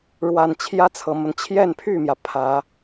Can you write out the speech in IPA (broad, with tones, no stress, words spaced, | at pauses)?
ɻwa˨˩n t͡ɕʰjä˥t͡sʰɤ˨˩mə˦n t͡ɕʰjɛ˥˧npʰy˥˩mjä˩ pʰä˨˩˦